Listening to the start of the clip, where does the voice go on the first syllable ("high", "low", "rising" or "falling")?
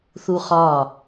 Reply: high